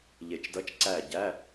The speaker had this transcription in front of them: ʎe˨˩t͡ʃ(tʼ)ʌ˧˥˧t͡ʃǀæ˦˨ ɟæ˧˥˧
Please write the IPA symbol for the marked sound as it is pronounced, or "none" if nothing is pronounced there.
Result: d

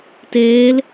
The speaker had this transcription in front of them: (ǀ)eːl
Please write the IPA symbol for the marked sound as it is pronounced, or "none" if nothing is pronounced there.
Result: t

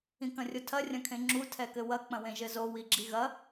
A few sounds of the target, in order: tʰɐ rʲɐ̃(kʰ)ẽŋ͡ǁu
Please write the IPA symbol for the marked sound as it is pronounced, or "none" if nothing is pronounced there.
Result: kʰ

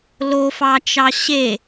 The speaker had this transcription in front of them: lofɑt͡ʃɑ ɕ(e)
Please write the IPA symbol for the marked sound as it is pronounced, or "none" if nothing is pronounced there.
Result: e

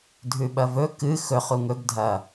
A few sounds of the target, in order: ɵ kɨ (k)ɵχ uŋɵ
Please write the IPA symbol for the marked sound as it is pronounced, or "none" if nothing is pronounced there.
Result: x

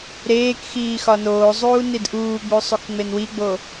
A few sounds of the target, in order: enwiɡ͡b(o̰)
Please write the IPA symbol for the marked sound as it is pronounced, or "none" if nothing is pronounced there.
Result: o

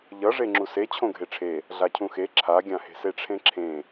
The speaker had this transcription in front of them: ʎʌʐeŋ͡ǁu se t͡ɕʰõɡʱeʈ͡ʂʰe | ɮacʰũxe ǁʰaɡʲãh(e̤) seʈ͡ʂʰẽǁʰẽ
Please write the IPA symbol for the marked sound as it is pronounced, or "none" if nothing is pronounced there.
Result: e̤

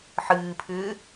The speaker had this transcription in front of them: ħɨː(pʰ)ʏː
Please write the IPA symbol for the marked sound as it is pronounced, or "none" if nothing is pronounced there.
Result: pʰ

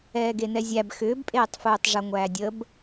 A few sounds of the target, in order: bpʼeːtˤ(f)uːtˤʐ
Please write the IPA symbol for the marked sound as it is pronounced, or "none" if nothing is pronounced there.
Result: f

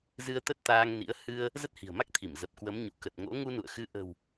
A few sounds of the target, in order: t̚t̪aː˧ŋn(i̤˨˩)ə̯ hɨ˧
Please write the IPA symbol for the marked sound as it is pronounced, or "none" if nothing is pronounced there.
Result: ḭ˧˥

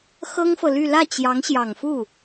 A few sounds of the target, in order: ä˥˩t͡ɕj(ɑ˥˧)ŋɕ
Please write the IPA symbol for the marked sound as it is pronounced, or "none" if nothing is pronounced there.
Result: ɑ˧˥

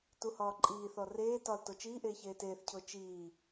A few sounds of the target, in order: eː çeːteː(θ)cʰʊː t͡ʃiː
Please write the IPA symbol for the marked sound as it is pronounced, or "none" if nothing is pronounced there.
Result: θ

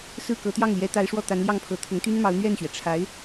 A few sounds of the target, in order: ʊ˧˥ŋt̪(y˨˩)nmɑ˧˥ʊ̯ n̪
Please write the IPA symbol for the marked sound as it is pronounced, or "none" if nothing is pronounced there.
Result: y˥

